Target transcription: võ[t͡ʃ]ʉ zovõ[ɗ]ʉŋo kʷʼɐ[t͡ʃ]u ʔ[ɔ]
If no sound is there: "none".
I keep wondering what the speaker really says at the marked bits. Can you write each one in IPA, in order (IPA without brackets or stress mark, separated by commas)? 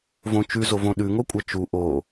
t͡ʃ, ɗ, t͡ʃ, o